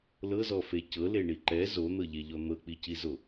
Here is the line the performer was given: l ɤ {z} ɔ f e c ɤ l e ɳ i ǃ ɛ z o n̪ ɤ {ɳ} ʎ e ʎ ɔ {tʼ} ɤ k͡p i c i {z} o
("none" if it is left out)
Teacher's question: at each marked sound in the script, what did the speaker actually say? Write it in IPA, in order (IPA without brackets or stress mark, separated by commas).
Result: z, none, n̪, z